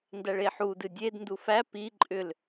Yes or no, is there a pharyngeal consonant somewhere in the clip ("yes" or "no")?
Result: yes